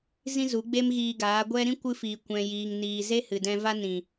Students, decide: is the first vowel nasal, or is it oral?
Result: nasal